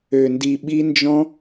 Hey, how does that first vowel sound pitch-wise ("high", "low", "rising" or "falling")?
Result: low